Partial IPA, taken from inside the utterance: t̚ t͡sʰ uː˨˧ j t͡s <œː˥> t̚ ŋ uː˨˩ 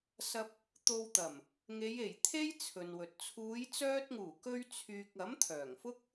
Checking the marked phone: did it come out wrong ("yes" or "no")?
yes